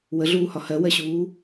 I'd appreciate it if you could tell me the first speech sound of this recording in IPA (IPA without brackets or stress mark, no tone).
w